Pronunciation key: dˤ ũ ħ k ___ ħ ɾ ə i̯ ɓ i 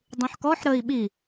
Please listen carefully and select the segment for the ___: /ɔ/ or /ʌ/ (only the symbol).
ɔ